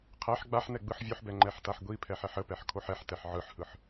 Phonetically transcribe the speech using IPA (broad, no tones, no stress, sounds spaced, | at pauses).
qʰ ɛ ħ ɡ͡b a ħ n ɛ ɡ͡b ɯ ħ vʲ o ħ b ɛ ŋ͡ǃ ɛ ħ t a ħ ɡʷ i pʰ ɛ ħ ɛ ħ ə p ɛ ħ kʰ o ħ ɛ ħ t ɛ ħ ʕ ɯ ħ h ɯ ħ